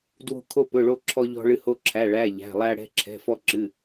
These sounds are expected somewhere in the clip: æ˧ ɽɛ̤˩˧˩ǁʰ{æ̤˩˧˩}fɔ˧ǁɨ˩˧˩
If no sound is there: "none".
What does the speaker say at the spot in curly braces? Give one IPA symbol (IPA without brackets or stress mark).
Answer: ɛ̤˩˧˩